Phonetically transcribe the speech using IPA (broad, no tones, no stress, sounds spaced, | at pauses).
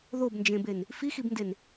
ð o b n d͡ʒ ẽ b e n | f i x i b n d e n